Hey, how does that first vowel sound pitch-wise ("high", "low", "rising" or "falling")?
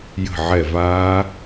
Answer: falling